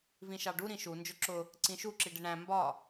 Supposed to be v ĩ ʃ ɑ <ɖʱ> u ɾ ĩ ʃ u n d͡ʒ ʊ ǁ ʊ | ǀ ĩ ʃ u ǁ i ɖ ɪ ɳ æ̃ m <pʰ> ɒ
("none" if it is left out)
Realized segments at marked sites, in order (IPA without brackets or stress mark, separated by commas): ɖ, b